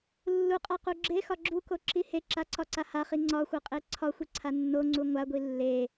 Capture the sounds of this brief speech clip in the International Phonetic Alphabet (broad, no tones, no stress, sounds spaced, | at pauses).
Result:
lː u qʼ a q u ɡ͡ǁ e x ɒ ɡ͡ǁ u k o ǁ i h e ǁ a ǀ ɒ ǀ a h a χ i ŋ͡ǀ ɒ xʷ ʌ qʼ e ǀʰ ɒ xʷ i ǀʰ a nː o ŋ͡ǀ u ŋʷ a ɡʷ i lː e